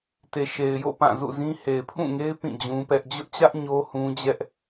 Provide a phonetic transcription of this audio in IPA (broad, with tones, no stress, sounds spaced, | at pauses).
t e˨ ʃ e˨ ɪ̯ j o̰˦˨ p ã˦˨ z ṵ˦˨ z ĩ˦ h e˨ ɪ̯ pʰ ũ˦˨ ŋ e˦ ɪ̯ p ĩ˦˨ d͡ʑ ũ˦ p ɛ˦ ʔ d͡ʑ ʊ˦ ʔ t͡ɕ ä˦ ʔ ɲ o˦ h ũ˦ d͡ʑ ɛ˦ ʔ